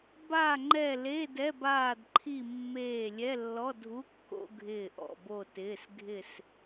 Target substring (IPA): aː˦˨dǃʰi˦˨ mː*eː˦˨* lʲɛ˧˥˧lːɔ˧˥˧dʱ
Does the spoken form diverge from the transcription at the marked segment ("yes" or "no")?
no